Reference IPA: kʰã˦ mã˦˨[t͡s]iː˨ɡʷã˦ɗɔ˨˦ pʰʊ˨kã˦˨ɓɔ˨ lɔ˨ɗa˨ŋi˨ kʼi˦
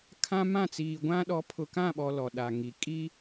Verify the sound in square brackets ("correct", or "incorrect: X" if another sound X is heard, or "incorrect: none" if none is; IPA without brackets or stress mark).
correct